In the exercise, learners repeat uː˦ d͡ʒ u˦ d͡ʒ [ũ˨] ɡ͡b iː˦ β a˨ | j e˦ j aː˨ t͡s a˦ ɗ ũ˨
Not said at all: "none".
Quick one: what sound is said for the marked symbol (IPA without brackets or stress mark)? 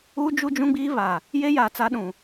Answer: ũ˦